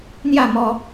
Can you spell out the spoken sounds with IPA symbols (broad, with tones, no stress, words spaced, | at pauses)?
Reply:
n̪ja˥˧mɔ˧